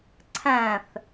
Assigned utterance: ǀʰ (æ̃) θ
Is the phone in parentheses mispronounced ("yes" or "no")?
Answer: no